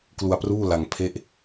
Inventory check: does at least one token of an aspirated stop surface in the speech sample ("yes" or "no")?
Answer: yes